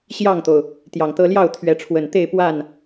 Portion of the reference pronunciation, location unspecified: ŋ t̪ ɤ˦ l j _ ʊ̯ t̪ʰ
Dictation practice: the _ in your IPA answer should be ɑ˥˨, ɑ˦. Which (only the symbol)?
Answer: ɑ˥˨